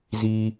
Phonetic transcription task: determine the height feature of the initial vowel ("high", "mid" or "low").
high